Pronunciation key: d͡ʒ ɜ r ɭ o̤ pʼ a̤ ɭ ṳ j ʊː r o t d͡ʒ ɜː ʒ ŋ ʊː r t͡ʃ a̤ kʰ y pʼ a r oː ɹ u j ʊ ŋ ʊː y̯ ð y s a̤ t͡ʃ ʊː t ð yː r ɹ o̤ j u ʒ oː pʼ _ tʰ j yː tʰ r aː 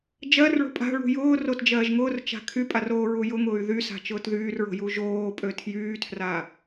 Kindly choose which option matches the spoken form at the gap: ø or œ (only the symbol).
ø